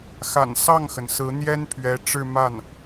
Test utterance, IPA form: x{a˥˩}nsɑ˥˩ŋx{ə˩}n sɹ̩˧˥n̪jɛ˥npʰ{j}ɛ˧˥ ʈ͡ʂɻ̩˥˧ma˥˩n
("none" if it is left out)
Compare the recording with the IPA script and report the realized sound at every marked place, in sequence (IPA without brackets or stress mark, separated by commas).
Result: a̰˨˩, ə˩, ɥ